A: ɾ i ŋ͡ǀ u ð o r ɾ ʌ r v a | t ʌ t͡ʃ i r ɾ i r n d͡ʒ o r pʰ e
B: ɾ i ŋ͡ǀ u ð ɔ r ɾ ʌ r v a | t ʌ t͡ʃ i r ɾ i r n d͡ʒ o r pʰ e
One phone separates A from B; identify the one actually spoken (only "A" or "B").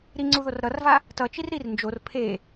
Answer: A